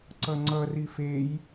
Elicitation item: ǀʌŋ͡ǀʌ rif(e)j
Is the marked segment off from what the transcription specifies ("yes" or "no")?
no